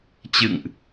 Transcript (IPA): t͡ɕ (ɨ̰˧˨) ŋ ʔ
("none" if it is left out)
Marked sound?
ɨ̰˧˨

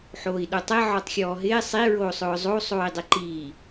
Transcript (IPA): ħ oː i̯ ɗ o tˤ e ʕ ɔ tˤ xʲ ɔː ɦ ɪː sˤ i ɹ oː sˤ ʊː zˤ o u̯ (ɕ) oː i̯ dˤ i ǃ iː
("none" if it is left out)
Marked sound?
sˤ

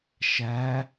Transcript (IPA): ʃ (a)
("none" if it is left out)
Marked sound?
æ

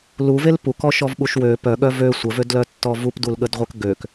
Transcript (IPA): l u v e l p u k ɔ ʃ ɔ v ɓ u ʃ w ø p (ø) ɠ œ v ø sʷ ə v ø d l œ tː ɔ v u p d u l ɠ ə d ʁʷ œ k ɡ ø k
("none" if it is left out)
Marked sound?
œ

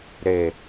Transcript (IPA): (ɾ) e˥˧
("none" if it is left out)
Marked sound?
ɾ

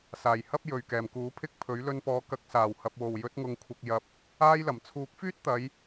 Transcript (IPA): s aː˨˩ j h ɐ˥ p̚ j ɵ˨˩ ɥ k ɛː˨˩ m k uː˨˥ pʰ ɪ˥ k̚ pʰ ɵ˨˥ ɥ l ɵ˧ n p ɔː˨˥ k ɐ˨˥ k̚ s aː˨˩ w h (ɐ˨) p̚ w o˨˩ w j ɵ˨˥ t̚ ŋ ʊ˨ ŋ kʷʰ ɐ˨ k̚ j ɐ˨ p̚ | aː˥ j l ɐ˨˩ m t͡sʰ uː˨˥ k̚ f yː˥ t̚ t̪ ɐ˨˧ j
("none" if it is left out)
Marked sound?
ɐ˨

